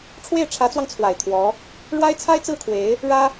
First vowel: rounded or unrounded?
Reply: unrounded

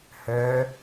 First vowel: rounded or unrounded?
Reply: rounded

